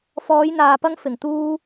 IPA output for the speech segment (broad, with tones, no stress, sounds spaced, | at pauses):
f ɔː˨˧ j n̪ aː˨ p ɐ˧ ŋ f ɪ˨˩ ŋ t̪ uː˧